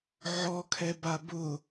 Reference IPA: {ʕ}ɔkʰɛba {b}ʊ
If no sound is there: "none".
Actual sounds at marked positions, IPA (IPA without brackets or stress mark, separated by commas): ʕ, b